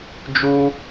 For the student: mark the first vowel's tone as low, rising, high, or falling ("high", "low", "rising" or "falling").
high